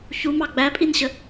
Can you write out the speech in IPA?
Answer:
çumɑ ɡ͡bæpʼinɕə

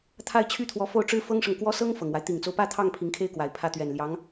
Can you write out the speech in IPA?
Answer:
t̪ʰa˥˩ɪ̯t͡ɕʰy˥t̪ʰwɔ˧˥ fo˥˩ʊ̯ʈ͡ʂɻ̩˥ fɤ˥ŋʂɤ˨ŋkwɔ˥ sɤ˥ŋ fɤ˨˩ŋwa˦ɪ̯ t̪i˨˩ŋt͡so˦ʊ̯pä˥˧t̪ʰɑ˥˩ŋ pʰi˧˥ŋkʰe˥ɪ̯kwa˨˩ɪ̯ pʰä˥˩t̪ɥɛ˨˩n ljɑ˧˥ŋ

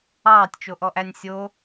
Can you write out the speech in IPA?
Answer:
ɑːtʲt͡ʃoʔɔʔænʲ sʲo

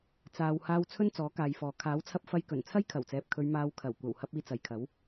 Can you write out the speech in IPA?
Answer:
t͡saː˨whaː˧w t͡sʰɵ˥nt͡sɔː˨˥kaː˨jfɔː˨ kʰaː˨˥wt͡sʰɐ˧p̚ fɐ˧jkɵ˨˩n t͡sʰɐ˥jkʰɐ˨˩wt͡sɛː˨p̚kʰɵ˨˧ɥ maː˧wkʰɐ˨˩w kʷɐ˨˩whɐ˧p̚ iː˧t͡sɐ˨jkʰɐ˨˥w

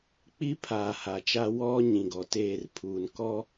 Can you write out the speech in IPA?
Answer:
k͡pi˦pʰaː˨ ha˨t͡ʃa˦ wɔ˦ ɲĩ˨ɡɔ˨teː˦˨r pʰuː˨nkɔ˦

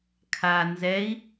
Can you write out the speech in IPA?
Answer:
kʰa nzɛi̯

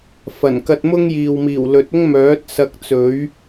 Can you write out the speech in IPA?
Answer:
fɐ˨˩nkɐ˧t̚ mʊ˥ŋjiː˨wmiː˨˩wlɵ˨˥t̚ ʊ˥ŋmœː˨˥t̚ sɐ˧k̚t͡sɵ˨˥ɥ

